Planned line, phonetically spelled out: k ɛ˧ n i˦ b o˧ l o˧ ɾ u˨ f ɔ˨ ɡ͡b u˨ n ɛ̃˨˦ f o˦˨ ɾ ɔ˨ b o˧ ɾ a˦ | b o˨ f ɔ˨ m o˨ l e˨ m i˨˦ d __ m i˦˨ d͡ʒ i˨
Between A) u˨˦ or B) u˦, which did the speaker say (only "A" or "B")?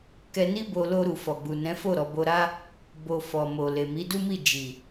B